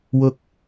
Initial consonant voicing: voiced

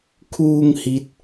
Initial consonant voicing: voiceless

